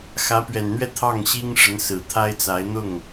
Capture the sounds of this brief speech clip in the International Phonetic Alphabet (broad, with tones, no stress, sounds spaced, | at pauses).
x ä˧˥ p ɥ ɛ˨˩ n n̪ ɥ ɛ˥˧ t̪ʰ ɑ˥˩ ŋ ɕ i˥ ŋ ʂ ə˧˥ n s ɹ̩˨˩ t̪ʰ a˥ ɪ̯ t͡s a˧˥ ɪ̯ n̪ ʊ˥˩ ŋ